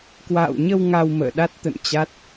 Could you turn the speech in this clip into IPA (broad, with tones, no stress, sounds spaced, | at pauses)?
k w a̰ː˧˨ w ɲ ə˧ w ŋ a˧ w m ə̰ː˧˨ ɗ a˦˥ t̚ t̪ ə̰˧˨ n t͡ɕ a˦˥ t̚